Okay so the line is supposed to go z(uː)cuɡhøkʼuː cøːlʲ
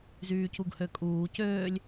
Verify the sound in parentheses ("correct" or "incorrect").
incorrect